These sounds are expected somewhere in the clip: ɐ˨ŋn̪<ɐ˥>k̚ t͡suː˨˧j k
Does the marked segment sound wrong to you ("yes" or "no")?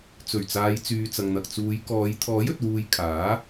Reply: yes